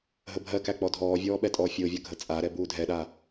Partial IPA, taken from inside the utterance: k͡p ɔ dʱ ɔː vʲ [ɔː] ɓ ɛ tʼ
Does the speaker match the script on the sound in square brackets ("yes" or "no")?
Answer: yes